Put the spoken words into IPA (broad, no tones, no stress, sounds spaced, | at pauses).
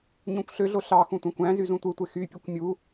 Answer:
ɲ õ kʷ ɬ ø ɮ o ɬ ɑ x ũ tʷ æ̃ kʷ æ̃ z y z ũ tʷ ɯ tʷ e x y pʲ u kʷ mʲ u